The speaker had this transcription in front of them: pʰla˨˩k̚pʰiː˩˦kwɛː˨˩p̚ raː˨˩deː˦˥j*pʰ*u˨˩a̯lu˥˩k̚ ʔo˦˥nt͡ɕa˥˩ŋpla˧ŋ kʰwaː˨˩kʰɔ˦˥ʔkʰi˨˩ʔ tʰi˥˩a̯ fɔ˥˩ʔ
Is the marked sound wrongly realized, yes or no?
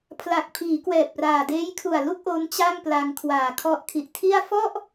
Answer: yes